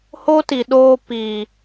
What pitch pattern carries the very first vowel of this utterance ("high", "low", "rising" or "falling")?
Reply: high